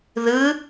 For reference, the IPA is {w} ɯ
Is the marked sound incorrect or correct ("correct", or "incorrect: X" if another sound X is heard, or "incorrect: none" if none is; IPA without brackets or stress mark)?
incorrect: ð